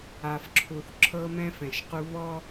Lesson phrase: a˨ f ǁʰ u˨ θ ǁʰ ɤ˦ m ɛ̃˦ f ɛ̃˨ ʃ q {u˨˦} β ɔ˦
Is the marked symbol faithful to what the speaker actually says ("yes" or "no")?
no